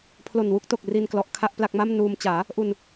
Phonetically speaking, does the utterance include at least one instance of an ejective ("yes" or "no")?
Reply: no